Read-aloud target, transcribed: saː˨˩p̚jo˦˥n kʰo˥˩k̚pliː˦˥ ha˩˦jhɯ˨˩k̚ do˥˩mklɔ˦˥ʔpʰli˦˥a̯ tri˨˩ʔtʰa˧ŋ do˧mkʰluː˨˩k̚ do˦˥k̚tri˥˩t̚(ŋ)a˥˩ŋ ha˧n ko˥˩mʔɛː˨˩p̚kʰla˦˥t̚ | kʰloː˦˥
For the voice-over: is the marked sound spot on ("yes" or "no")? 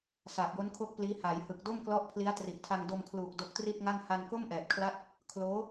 yes